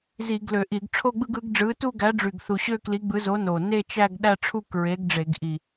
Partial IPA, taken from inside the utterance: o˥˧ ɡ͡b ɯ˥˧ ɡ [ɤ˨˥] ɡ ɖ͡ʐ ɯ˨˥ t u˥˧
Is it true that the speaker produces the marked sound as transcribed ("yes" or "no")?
no